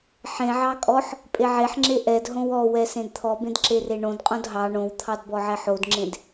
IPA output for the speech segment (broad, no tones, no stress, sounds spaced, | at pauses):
ħ ẽ ʕ ɑ kʼ ɔ ħ | pʼ e ʕ e ħ ŋ͡ǁ e ʔ ɛ d ɦ õ w ɔ w ɛ s ẽ d t̪ʰ ɔ b ẽ d ǁ e r e ɳ õ d qʼ õ d ɦ ɑ ɳ õ w t̪ʰ ɑ d b ɔ ʕ ɛ ħ o d ŋ͡ǁ ẽ d